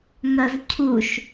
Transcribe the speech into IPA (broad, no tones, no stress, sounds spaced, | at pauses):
ŋ ɐ z cʰ u ʃ